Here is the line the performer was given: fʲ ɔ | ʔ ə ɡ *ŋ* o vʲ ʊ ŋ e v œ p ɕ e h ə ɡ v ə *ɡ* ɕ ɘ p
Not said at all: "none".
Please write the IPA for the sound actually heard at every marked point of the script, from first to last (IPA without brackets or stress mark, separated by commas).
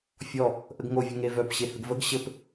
ŋ, ɡ